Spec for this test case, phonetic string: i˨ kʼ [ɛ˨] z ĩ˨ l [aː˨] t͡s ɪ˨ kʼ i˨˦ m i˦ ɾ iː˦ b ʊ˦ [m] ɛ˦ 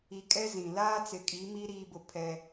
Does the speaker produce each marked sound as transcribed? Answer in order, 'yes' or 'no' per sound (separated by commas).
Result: no, no, no